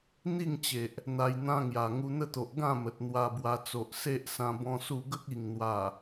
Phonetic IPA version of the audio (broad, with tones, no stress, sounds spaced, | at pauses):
n̪ i˥˧ ŋ t͡ɕ e˨ ʔ | n̪ a˧ j n̪ ã˦ ŋ j a˨˩ ŋ u˧ n̪ ə˦ t̪ o˨ ʔ ɡ ã˥˧ m ə˨ t̚ n̪ w a˧ b w a˧ t͡s o˨ ʔ s e˦ ʔ s ã˧ b ɔ̃˦ s u˥˧ ɡ ə˦ k̚ i˨˩ ŋ n̪ w a˨˩